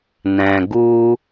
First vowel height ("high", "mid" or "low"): mid